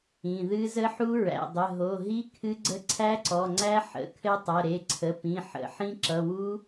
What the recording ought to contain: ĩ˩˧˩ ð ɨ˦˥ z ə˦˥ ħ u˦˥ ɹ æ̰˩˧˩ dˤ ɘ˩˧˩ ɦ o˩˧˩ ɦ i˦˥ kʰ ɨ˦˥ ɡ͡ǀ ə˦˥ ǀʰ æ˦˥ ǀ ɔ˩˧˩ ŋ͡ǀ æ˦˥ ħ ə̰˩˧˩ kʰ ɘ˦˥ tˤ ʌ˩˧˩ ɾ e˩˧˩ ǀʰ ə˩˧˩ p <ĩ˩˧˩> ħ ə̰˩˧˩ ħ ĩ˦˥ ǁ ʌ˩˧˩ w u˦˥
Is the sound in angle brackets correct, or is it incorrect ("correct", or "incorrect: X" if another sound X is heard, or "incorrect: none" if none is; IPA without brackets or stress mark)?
correct